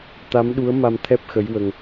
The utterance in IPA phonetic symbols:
t̪ a˧˥ m ɗ u˧˥ ə̯ m a˧ m t̪ʰ ɛ˦˥ p̚ x ə˧˥ j w ə˧ ŋ

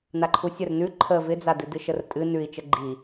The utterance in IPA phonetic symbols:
n a ǃʰ u sʲ ə r n ʉ ǃʰ ə v ɪ d͡z a d ɨ d ɨ ʃ ə r tʼ ɨ n ʉ i̯ t͡ʃ ə ɡ͡ǃ i

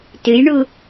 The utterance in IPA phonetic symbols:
t ɨ j ɳ u

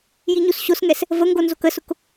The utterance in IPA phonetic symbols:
j i ɲ u s ɕ o s ŋ ɛ s | v ə ŋ ɡ o n z o k ə s ʊ k

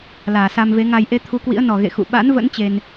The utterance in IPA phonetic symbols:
l aː˧˩ s a˧ m v e˨˦ ŋ a˧ j ʔ e˧ t̪ʰ u˨˦ k w ḭ˧˥ ə̯ n ɔ˨˩ ɣ ḛ˧˨ x ṵ˧˨ ɓ a̰˧˥ n v ə̰˧˥ n t͡ɕ e˧ n

